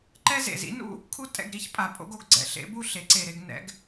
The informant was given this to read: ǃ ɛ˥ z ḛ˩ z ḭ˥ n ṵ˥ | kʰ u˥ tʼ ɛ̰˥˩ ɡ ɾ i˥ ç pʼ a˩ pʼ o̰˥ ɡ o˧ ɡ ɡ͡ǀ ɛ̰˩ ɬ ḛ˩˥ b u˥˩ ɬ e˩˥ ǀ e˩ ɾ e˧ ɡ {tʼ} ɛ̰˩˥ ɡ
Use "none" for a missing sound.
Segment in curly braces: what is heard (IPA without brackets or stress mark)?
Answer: n